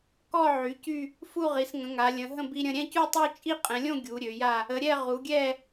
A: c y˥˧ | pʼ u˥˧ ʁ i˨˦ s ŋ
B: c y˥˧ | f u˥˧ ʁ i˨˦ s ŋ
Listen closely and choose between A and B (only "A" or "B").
B